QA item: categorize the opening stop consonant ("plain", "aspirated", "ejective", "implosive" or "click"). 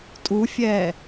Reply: ejective